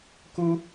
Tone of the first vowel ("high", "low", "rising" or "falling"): high